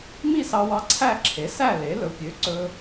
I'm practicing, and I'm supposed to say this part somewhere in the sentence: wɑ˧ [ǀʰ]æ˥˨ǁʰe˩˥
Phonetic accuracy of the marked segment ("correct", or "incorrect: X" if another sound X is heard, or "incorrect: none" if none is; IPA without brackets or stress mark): correct